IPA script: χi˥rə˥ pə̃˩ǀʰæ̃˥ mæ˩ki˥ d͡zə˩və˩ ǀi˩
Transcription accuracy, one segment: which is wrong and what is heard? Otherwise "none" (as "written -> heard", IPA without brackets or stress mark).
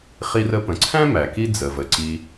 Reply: none